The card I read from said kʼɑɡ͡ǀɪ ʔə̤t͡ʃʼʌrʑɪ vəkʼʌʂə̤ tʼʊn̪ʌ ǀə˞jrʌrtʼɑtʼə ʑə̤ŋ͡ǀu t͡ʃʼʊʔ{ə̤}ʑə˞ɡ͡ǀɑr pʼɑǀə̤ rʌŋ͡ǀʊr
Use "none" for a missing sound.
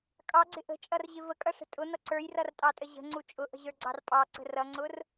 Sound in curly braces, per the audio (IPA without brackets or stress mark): ə̤